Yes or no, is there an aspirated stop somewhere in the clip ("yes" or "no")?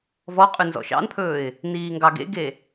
yes